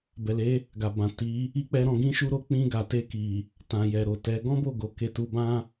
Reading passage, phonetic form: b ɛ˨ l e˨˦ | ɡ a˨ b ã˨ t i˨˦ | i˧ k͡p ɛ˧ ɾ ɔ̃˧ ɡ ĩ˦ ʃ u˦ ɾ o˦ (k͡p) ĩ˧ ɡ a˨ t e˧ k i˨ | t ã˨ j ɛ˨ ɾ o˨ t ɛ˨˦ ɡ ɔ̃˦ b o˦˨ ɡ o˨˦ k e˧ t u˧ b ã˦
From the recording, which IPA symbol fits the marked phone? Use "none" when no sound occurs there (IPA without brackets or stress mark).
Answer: k͡p